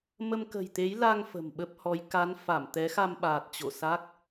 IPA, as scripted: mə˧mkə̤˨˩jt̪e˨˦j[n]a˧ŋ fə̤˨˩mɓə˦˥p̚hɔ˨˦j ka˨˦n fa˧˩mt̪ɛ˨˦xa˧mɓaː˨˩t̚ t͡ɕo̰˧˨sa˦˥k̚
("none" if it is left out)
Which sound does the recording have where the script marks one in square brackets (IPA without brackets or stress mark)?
l